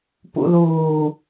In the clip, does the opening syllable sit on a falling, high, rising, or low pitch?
low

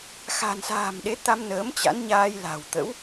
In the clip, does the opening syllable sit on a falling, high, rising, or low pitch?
low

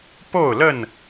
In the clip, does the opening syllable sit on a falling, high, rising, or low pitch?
falling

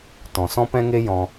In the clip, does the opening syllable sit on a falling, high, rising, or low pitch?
low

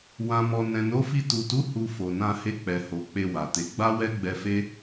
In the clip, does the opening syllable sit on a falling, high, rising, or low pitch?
low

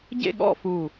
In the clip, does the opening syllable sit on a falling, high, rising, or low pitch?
falling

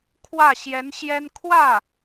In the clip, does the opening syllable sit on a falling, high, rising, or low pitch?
falling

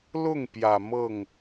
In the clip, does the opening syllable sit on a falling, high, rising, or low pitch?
falling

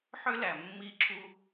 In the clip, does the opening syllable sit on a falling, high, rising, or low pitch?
high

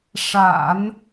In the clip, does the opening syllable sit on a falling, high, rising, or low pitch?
low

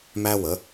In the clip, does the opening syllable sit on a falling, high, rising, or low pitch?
high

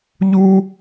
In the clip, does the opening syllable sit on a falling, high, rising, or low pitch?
high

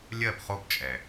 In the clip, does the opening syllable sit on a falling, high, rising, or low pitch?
falling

